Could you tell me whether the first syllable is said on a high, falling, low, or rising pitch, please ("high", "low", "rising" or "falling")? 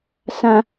high